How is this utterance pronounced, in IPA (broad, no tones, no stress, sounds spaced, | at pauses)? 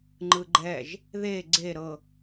ŋ͡ǃ ɯ ɡ͡ǃ ɛ ʒ | ð e ɡ͡ǀ e ɾ ɤ